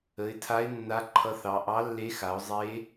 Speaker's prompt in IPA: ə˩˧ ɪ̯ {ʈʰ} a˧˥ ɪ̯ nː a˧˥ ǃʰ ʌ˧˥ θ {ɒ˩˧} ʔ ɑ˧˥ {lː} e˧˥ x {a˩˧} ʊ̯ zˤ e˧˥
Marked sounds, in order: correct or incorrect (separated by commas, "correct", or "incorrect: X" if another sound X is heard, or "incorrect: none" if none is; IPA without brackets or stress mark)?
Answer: incorrect: tʰ, incorrect: ɑ˩˧, correct, correct